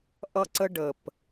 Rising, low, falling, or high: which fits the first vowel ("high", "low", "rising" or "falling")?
high